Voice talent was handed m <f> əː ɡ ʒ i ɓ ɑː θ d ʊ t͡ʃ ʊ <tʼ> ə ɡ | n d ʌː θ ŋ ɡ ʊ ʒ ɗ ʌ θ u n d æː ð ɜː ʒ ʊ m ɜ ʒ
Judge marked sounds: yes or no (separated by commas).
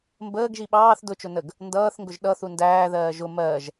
no, no